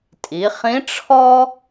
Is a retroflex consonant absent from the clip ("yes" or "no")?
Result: no